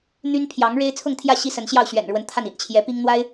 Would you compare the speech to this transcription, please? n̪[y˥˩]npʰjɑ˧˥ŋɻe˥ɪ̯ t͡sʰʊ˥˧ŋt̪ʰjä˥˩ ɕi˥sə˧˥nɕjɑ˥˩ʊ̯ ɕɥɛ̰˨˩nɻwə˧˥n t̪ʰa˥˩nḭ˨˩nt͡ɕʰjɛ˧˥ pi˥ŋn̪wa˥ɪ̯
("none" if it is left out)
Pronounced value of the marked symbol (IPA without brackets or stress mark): y˥